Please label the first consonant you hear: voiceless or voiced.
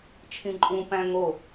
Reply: voiceless